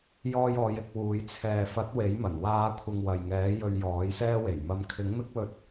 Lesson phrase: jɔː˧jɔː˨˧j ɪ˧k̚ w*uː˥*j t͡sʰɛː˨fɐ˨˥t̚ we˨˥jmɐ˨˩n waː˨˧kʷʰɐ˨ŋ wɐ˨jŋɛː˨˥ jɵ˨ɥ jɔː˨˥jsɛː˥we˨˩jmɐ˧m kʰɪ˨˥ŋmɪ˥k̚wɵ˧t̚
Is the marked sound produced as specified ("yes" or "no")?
no